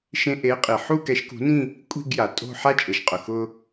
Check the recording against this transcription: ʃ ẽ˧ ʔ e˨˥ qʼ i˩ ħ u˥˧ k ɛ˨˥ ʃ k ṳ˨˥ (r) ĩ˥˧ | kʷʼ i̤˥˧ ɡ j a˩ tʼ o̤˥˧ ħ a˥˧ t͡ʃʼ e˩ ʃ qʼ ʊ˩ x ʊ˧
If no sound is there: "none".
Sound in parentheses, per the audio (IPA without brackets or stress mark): n